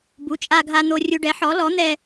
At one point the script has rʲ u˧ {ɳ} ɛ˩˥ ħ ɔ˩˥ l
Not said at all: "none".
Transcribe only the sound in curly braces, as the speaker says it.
ɖ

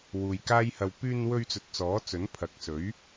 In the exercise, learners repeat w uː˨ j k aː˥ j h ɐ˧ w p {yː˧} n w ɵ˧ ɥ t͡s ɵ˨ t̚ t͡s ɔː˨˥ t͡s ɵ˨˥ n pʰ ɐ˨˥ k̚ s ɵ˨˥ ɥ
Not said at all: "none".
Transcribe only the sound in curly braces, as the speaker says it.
yː˧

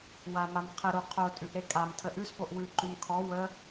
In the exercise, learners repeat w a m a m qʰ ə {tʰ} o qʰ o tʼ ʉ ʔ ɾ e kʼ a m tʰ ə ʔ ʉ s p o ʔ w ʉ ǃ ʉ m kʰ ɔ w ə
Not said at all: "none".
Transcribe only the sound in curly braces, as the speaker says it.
ɾ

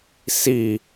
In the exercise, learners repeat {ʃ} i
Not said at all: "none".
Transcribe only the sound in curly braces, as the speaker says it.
s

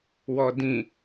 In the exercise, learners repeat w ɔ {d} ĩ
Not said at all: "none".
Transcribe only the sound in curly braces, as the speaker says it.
d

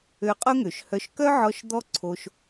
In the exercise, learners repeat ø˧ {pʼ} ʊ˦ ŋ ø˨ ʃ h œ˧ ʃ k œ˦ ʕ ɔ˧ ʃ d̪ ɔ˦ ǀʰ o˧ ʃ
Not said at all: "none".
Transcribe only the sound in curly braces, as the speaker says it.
qʼ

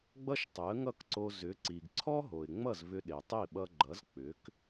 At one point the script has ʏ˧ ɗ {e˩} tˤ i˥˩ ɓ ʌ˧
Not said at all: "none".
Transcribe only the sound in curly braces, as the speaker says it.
e˩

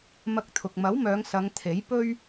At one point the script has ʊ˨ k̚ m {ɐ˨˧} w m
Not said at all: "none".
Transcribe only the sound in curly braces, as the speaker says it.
ɐ˨˥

